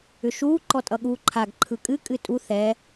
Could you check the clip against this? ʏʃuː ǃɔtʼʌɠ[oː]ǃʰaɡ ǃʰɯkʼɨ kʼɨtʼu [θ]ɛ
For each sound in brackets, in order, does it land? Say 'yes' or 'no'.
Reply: no, yes

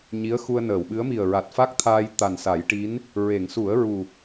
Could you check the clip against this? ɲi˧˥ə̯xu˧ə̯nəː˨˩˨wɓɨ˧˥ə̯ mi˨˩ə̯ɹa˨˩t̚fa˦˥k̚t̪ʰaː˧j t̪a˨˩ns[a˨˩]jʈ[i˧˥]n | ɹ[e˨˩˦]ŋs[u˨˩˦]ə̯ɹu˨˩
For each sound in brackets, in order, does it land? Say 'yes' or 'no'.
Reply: no, yes, no, yes

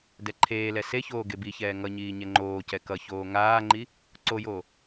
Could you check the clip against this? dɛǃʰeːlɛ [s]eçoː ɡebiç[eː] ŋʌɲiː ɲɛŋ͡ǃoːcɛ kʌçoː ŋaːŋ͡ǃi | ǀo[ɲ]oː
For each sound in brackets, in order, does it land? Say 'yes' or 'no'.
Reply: yes, no, no

